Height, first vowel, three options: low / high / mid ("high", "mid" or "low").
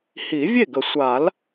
high